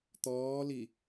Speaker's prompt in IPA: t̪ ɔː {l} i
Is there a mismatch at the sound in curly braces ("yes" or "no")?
no